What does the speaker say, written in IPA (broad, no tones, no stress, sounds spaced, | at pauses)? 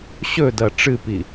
ɕ ɵ d ɐ ʈ͡ʂ ɨ p i